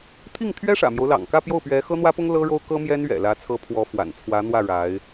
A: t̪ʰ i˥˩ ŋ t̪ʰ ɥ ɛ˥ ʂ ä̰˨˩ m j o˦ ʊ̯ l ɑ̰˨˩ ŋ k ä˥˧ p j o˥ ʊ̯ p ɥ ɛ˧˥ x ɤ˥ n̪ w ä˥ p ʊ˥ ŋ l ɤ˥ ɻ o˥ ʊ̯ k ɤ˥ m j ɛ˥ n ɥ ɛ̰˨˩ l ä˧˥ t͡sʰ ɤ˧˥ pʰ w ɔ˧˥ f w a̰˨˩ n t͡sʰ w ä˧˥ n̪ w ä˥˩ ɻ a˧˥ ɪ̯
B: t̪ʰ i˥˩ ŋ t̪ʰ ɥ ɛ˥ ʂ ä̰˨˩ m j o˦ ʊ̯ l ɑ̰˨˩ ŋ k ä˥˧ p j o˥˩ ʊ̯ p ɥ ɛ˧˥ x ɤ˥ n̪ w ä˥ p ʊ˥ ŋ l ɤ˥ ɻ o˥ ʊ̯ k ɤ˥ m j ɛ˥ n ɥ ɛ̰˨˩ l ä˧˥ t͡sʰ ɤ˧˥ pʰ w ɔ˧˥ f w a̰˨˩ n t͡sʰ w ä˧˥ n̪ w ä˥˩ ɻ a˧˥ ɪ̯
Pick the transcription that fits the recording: B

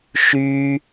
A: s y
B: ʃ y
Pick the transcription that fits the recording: B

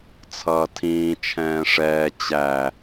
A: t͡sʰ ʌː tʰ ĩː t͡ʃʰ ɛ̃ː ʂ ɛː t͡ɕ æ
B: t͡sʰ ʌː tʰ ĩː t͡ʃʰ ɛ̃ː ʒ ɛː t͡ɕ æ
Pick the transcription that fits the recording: A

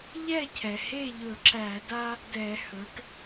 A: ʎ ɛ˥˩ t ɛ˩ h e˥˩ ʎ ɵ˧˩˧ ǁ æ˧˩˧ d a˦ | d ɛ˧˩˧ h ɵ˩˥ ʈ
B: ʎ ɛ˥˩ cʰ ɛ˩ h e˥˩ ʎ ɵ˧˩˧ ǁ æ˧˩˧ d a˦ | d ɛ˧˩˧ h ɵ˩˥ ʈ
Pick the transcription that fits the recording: B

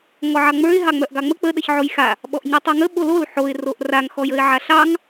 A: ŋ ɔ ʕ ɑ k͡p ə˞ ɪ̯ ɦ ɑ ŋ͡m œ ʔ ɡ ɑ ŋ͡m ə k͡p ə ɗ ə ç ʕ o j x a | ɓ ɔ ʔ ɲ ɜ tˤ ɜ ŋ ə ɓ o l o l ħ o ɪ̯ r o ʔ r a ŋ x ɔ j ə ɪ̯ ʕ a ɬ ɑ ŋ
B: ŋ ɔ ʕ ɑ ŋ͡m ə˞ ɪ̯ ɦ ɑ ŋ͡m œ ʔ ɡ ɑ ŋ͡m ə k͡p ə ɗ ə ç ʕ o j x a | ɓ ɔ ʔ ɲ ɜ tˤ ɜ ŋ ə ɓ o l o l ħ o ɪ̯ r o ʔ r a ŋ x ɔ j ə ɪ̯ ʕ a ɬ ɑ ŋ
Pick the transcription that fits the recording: B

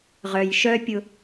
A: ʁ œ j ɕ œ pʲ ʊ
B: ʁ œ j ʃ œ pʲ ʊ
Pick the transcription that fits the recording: B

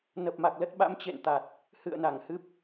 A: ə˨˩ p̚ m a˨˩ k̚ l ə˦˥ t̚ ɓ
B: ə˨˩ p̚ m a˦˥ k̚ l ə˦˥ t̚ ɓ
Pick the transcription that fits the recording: A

